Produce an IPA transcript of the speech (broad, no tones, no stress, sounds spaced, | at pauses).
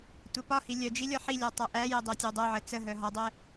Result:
tʷ ɛ p ɒ h i lʲ œ d͡ʒ i lʲ ɒ ħ i lʲ ɒ tˤ a ʔ æ j ə dˤ æ tʲ æ dˤ œ ʕ ə t͡s ə ɦ œ ɦ ɒ dˤ ɛ